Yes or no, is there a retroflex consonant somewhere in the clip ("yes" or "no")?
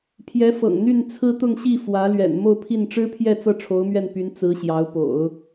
yes